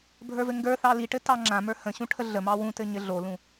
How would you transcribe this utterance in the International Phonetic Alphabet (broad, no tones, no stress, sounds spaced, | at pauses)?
bʱ ə˞ v ɘ ŋ ɡ ə˞ θ ɑ l i ʈ ɘ t ɑ ŋ͡ǁ ã m ə˞ h ə̃ ɕ ũ ʈʰ ə ɮ ə m ɑ w ũ t ɘ ɲ ɘ ɮ o l ũ